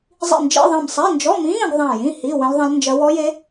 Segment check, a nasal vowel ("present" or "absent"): present